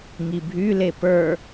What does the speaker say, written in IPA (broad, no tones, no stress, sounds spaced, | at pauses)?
ŋ i bʱ y l e p ə˞